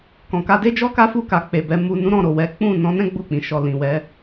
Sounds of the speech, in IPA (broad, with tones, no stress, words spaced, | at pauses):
kɔ̃˨ ka˧de˦d͡ʒɔ˦ ka˦fu˦˨ka˨k͡pe˨ bɛ˨˦ mu˧nũ˦ ɾɔ̃˦˨ɾo˨ wɛ˨˦ k͡pũ˦˨ nɔ̃˧nɛ̃˦ ɡ͡bu˦˨k͡pĩ˨ ʃɔ˨ lĩ˨wɛ˨˦